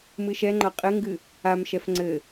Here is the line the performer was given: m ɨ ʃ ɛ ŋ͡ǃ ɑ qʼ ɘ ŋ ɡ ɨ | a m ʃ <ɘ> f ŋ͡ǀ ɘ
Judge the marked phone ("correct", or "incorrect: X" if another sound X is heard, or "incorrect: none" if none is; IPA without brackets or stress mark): incorrect: ɛ